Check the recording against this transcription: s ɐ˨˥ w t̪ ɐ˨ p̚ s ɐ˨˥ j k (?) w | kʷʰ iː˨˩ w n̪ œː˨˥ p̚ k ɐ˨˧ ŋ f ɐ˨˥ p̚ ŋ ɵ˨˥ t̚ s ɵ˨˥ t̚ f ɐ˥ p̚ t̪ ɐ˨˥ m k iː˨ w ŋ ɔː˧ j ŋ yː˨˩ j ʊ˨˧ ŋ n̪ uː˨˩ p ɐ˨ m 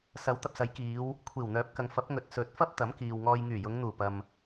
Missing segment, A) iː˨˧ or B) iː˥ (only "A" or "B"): A